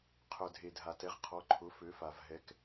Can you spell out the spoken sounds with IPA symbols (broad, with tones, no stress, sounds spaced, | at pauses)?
qʰ œ˩ dʱ e˩ dʱ a˩ t ɛ˩˧ ʁ qʰ ɔ˩˧ ǃʰ ʊ˩˧ f ø˩˧ f a˩ v ɦ ɛ˩˧ k